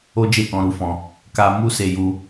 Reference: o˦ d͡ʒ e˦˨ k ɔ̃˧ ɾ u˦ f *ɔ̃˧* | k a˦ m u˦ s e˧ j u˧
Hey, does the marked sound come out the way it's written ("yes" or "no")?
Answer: yes